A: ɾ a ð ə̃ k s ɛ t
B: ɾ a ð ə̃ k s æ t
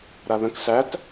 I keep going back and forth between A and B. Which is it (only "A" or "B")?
B